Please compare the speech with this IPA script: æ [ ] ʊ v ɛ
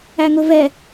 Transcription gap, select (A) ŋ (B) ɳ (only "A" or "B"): A